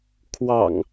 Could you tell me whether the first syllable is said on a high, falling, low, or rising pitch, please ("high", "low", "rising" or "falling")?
low